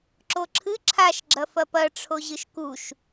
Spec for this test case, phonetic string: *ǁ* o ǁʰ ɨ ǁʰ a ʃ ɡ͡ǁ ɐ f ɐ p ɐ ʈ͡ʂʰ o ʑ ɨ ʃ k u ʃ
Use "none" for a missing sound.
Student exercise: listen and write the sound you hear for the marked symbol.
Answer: ǁ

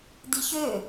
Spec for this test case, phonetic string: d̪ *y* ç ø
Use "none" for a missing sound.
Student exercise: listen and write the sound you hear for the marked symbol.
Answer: i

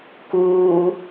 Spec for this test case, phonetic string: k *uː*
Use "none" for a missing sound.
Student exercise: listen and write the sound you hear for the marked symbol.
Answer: uː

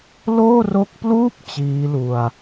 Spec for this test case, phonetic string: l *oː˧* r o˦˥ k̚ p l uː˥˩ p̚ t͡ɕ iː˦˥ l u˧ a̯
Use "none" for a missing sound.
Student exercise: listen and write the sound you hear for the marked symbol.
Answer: oː˥˩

